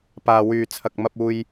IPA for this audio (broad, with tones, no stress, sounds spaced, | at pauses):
p aː˨ w yː˨ t͡sʰ ɐ˨ k̚ m ɐ˧ p̚ uː˧ j